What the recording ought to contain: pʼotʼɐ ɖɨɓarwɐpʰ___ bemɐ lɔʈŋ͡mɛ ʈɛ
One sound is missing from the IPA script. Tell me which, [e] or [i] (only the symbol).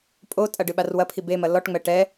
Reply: i